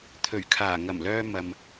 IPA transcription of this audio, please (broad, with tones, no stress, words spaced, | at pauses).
t̪ʰɵ˨˩ɥkʰaː˨˩ ŋɐ˨˩mlœː˧ mɐ˨m